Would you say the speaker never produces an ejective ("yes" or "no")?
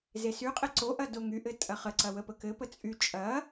no